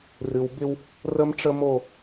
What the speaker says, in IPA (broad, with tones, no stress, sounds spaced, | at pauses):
r ɨ˨ w b ɪ˦ w | r ə˦ m ʈ͡ʂ ə˦ m o˦˨